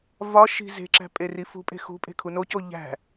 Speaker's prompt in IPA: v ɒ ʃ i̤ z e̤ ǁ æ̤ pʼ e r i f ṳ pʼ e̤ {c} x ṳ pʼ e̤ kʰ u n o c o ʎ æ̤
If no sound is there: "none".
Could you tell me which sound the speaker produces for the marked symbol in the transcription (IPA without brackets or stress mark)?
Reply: none